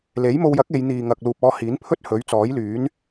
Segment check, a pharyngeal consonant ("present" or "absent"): absent